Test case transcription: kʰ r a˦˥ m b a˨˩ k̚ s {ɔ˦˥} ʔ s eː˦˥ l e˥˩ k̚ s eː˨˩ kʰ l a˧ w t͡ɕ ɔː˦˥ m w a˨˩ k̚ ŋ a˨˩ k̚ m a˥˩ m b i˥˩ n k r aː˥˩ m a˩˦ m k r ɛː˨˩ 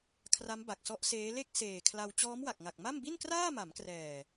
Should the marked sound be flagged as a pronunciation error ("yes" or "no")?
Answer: no